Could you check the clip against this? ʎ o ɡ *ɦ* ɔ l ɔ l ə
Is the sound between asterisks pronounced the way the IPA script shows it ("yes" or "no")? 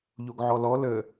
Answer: no